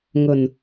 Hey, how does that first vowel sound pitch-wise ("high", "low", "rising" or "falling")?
low